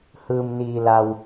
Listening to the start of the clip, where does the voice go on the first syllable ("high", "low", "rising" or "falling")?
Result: low